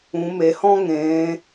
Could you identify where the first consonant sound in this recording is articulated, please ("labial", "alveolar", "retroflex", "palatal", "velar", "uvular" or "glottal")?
labial